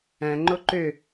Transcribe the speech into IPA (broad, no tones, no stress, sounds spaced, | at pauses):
æ̃ ŋ͡ǃ o ǃ ø